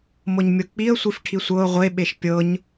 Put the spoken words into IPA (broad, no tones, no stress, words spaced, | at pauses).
mɤɲmʲɤk͡piə̯ sʷifʈʰisʷɤʊ̯ ʁʷe ɓeʃpʲɤɲ